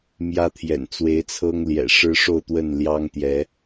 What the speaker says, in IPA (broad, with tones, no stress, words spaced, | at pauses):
mjä˦t̪ʰjɛ̰˨˩n t͡swe˨˦ɪ̯t͡sʰɤ˦ŋljɛ̰˨˩ ʂɻ̩˦ʂo˥˨ʊ̯t̪wə˥˨n ljɑ˦ŋt̪jɛ˨˦